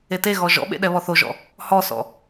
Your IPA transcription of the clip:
e t e ɣ ɔ ʒ ɔ̰ ɓ ḛ ɗ ɛ β ɔ θ o ʒ ɔ̰ | h ɔ s ɔ̰

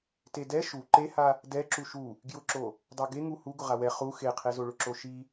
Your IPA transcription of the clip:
t e d ɛ ʃ u ǃ e h a | d ɛ ǁ u ʃ u | ɡ j ʊ ǁ o | dˤ a ɡ e ŋ u h u ɡ ʊ ʁ a w ɛ χ u x e qʰ e z o ɭ ʊ ǁ o ʃ i

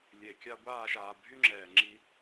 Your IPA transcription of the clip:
lʲ e˨ kʲ a˦ ɡʷ aː˦˨ ʃ aː˨ bʱ y˦ ŋ͡ǁ ɛː˨ ŋ͡ǁ i˦

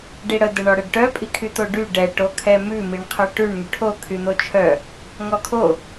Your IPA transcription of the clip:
ɖ i ɽ ə d ə ɳ ɔ ɽ ə ɖ ʈ œ pʼ i kʰ y t̪ o ɖ y ɖ ɛ ʈ o kʰ ɛ m ʉ m i ɳ qʰ œ ʈ ʉ ɳ ŋ y ʈʰ o kʰ y n̪ o t͡ʃʰ œ | ŋ ɔ kʰ o

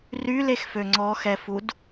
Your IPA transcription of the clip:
r y l e x f ø ŋ͡ǀ ɔ x ɛ f u d

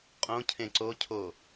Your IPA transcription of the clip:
qʼ õ cʰ ẽ ǀ o cʰ o

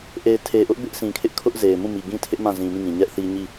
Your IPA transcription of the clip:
ʔ e˨ ɪ̯ tʰ e˨ ʔ ʊ˦ ʔ b ɪ˦ ʔ sʰ ĩ˨ kʰ ɪ˦ ʔ kʰ ʊ˦ ʔ z e˨ ɪ̯ m ũ˦˨ m i˨ ɡ ĩ˦ tʰ ɪ˦ ʔ m ã˦˨ z ĩ˨ m ĩ˦˨ ŋ ĩ˨ ɲ ɛ˦ ʔ θ i˦ ɲ i˦˨

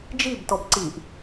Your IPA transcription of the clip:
d͡ʒ i b t ɔ b ǀ i ʔ

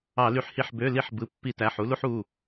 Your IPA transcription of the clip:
ɑ˧˩˧ l y˧˩˧ ħ h i˧˩˧ ħ b ø˩˧˩ l i˧˩˧ ħ b ɯ˩˧˩ pː i˧˩˧ t æ˩˧˩ ħ u˨˦ l u˦ ħ u˩˧˩

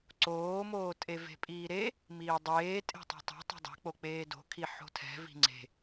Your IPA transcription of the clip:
ǀ oː m oː tʼ e v e̤ pʼ iː ɾ e | m iː dˤ eː tʼ e̤ tˤ o̤ tˤ e̤ tˤ ɛ̤ dˤ e̤ k͡p o k͡p eː d o̤ kʰ i ħ o̤ tʰ ɛ̤ v i̤ ŋ͡ǀ e̤

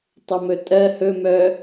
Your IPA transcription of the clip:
tˤ ʊ m ɵ tʼ ɜ h ɵ m œː

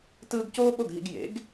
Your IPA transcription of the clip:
t ɯː˧ ɡ c oː˥ ɓ o˥˩ ɡ ɦ ḭ˧ ɡ j ḛ˩˥ ɡ

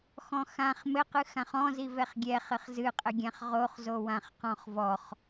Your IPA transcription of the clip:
x ɔ̃ x ã χ m ɘ q ɨ x ã χ ɔ̃ z i v ɛ χ ɡʲ ɛ χ ɘ χ z ɨ qʼ ɘ ɡʲ ã χ ʁ o χ z o w ã χ q ɔ̃ χ v ɔ χ

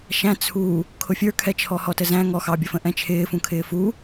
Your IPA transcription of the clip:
ʃ æ̃ t͡sʰ u | kʰ ʊ fʲ ə˞ kʰ ɛ t͡ʃʰ ɔ h ɔ t ə z æ̃ ŋ ɔ x ɑ bʲ ʌ f ə̃ ʔ ɛ̃ t͡ʃʰ ɪː f ũ kʰ ɪː f u

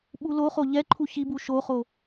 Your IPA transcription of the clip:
ɓ u l o χ o ʎ ɛ ǃʰ u ç i b u ʃ o χ o

